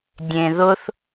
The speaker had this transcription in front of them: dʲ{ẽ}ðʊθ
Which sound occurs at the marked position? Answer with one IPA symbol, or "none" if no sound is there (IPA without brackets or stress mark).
ẽ